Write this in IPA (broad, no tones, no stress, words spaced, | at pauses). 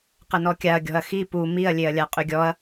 qənɔkʲaɐ̯ ɡʲɔ̤ɐ̯xi pu miɐ̯lʲeɐ̯ lʲaqʼyɡʲɔɐ̯